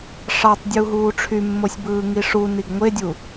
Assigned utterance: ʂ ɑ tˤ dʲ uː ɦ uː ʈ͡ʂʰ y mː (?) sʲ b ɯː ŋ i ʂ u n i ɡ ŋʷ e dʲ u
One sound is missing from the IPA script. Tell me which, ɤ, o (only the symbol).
o